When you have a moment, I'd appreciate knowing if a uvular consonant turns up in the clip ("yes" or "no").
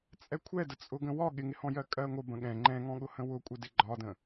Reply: no